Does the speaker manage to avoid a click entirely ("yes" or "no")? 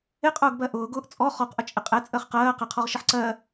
no